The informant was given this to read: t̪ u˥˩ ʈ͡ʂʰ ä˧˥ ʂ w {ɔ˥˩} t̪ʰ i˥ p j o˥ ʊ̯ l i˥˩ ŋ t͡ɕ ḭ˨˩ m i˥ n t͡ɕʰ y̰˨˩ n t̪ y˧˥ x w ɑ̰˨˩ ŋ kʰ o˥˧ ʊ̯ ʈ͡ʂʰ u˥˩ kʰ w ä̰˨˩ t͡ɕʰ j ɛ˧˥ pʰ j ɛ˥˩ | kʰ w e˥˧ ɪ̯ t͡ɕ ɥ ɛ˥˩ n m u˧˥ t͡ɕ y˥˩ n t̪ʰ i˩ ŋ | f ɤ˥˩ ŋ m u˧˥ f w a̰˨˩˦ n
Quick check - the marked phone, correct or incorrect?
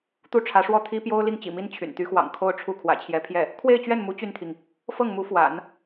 correct